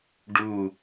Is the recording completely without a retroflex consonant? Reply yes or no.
no